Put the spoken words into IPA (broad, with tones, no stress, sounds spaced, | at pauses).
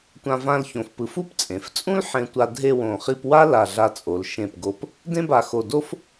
tʷ ã˧ v ã˥˧ l ç õ˧ f p ɯ˧ f u˥ p t͡sʼ ẽ˩˧ f t͡sʼ ũ˥ l ħ ẽ˧ tʷ a˧ dʱ e˥˧ w õ˧˩ χ i˥˧ p w a˥ l a˧˩ ɮ a˧ t͡sʼ o˩˧ l ʃ ẽ˧˩ p ɡ o˧˩ p | d ẽ˥ b a˧˩ x o˧˩ d o˥ f